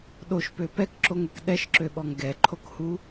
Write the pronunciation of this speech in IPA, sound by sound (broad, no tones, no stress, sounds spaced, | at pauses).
ɗ o ʃ p ø p ɛ k ǁ o ŋ ɛ k ɗ ɛ ʃ ǁ ø ɓ ɔ ŋ ɡ ɛ ǃʰ o k h u